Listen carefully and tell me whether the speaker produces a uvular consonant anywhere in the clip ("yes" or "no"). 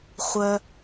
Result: yes